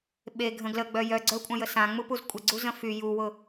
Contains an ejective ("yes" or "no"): yes